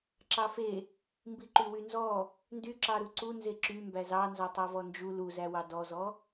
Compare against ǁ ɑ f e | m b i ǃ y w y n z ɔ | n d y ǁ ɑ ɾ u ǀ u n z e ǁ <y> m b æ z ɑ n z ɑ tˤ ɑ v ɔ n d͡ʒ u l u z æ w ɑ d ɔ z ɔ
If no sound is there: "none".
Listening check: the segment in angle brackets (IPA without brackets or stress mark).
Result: y